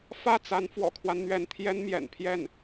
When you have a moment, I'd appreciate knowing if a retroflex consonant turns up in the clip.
no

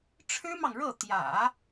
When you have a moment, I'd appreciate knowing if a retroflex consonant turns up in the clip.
yes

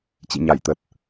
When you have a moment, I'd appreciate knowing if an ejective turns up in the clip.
no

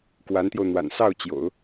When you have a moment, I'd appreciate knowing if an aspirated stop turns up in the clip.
no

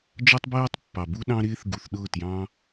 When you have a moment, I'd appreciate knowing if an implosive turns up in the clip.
yes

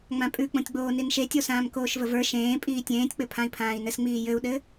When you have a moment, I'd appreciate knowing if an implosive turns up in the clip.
yes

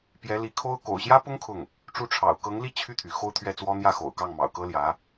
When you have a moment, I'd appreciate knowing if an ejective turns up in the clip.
no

